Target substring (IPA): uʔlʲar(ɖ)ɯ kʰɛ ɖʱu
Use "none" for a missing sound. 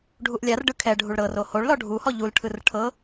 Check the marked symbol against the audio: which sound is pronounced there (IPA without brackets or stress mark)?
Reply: ɖ